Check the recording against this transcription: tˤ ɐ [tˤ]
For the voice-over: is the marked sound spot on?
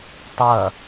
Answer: no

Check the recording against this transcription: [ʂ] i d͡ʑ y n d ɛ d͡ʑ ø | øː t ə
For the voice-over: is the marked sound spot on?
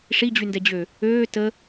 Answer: yes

